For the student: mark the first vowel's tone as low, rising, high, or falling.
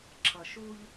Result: low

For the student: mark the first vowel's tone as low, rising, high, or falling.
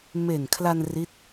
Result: low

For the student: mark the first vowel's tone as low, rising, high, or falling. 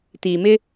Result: low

